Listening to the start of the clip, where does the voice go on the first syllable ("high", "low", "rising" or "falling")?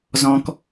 low